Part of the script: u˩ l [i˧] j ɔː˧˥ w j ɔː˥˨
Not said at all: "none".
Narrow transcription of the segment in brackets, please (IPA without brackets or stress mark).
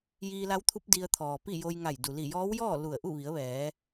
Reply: i˧˩